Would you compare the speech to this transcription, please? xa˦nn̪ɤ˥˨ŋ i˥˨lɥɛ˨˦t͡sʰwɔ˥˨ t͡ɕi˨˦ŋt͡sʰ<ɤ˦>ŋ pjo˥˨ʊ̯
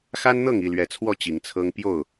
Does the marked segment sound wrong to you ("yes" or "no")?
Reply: no